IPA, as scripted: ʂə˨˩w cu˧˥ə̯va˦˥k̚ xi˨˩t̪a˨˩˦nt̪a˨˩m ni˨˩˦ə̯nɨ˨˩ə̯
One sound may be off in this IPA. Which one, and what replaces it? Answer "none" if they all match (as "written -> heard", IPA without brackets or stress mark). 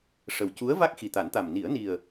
ɨ˨˩ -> i˨˩